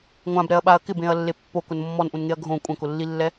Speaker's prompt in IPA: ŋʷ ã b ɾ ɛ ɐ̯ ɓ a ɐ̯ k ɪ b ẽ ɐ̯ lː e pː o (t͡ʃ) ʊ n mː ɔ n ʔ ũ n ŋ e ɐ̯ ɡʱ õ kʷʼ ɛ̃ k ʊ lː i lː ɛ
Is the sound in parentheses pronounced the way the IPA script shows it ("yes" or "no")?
no